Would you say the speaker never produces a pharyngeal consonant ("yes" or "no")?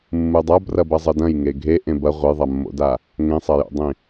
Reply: yes